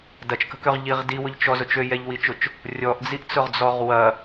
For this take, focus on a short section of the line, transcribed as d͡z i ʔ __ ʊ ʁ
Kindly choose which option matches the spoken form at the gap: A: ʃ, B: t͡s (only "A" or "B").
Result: B